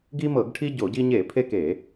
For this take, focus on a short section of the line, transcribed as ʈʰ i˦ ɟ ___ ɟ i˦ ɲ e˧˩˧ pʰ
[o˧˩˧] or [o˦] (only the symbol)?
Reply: o˧˩˧